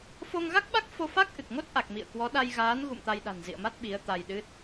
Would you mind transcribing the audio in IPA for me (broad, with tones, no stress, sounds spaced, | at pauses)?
f o˧ ŋ ɣ a˦˥ k̚ ɓ a˦˥ k̚ f o˧ f a˦˥ k̚ ʔ ɨ˨˩ k̚ ŋ o˦˥ t̚ ʔ a˨˩ k̚ m ḭ˧˨ ə̯ k w ɔ˨˦ ɗ a˧ j ɣ aː˨˦ n ɣ ṵ˧˨ m t̪ a˧ j ɗ a̤˨˩ n z ḭ˧˨ ə̯ m a˦˥ t̚ ɓ i˨˦ ə̯ t̪ a˧ j ɗ ɨ˦˥ t̚